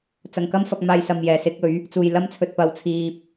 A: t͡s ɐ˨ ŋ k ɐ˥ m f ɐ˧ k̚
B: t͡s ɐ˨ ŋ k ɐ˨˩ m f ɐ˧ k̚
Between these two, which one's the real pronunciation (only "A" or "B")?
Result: A